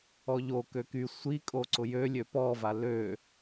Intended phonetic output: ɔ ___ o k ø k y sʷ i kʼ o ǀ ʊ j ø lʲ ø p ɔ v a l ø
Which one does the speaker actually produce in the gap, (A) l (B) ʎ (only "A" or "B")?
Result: B